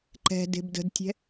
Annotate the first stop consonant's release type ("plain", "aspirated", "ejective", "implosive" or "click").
click